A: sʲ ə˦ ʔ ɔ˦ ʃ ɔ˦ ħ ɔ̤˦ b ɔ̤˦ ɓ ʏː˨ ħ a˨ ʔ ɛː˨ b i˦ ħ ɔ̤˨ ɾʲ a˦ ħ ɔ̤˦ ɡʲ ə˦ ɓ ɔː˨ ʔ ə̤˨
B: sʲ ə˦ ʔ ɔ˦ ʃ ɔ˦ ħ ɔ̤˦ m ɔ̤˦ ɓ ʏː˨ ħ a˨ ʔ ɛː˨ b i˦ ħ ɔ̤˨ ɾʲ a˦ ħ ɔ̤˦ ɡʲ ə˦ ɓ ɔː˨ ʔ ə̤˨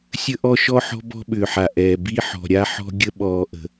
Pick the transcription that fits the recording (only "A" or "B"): A